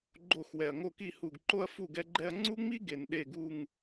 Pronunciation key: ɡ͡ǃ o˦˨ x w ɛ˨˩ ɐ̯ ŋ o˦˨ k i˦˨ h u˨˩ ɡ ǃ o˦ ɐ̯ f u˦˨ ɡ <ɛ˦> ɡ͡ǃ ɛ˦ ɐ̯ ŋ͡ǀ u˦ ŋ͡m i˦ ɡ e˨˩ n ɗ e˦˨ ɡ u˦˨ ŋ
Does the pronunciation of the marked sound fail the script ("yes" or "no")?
no